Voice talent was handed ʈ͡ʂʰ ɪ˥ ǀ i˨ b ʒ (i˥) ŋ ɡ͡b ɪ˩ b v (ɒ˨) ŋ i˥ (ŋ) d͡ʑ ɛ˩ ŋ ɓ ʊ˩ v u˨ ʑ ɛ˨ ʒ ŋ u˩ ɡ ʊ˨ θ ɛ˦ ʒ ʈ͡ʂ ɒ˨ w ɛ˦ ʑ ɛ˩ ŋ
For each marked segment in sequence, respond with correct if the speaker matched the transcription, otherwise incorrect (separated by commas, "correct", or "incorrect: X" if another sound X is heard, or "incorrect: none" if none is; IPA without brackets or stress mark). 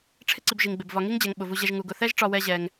incorrect: i˩, correct, correct